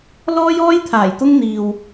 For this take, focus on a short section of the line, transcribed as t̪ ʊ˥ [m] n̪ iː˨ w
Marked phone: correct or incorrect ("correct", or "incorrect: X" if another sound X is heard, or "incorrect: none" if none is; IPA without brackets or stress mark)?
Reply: incorrect: ŋ